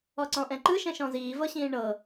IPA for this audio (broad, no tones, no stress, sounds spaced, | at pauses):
ɔ ǀ ɔ̃ ʔ ɛ̃ ǃ ɯ ʃ ɛ̃ ʃ ɔ̃ z iː v ɤ ɕ ĩː ɳ ɤ